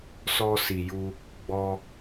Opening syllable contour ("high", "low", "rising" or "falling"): high